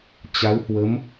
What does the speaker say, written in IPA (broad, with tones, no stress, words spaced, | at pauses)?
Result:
t͡ɕa˨˦whwə˨˦m